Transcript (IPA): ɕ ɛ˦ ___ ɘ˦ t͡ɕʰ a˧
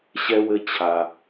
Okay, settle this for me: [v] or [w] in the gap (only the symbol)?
w